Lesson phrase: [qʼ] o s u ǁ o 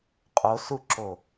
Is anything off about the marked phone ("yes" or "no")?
no